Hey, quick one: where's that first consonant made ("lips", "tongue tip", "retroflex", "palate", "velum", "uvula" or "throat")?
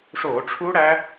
retroflex